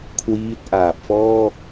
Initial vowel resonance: oral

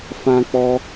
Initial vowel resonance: nasal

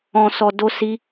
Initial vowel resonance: nasal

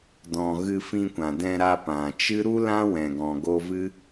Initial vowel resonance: nasal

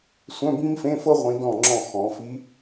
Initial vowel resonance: nasal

